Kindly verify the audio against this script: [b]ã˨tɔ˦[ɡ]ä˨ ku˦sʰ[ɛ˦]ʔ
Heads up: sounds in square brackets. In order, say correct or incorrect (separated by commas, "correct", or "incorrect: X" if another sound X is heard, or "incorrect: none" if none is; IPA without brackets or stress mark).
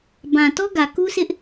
correct, correct, incorrect: ɪ˦